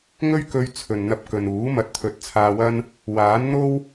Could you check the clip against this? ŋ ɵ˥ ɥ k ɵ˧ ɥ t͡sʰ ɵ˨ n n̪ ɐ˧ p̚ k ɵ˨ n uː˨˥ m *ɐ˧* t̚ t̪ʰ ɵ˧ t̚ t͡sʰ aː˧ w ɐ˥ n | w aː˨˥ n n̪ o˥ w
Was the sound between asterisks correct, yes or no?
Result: yes